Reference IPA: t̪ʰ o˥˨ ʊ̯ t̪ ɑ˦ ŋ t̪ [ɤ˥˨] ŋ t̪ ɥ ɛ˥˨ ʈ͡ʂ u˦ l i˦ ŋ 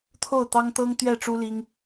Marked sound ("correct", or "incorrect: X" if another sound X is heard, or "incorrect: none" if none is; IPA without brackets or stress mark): incorrect: ɤ˦